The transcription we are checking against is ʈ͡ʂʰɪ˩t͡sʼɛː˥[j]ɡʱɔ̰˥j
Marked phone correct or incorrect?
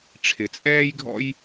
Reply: correct